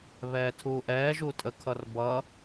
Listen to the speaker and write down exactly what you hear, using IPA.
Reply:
β ɛː tʰ uː ʔ ɛː ʒ u tʼ ə kʰ ʌ r b ʌ

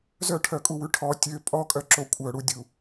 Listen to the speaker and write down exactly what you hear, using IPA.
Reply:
z œ ʈʰ œ kʼ u w ʉ ʈʰ ɔ tʲ ø pʼ ɔ kʼ œ ǁ o kʷʼ œ ɽ u dʲ u

